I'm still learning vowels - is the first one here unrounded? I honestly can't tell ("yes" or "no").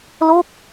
no